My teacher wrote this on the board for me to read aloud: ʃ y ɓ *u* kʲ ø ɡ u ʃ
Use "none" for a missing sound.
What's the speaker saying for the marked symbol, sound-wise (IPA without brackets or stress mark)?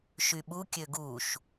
u